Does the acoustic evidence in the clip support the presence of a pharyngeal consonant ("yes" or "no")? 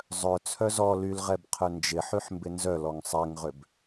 yes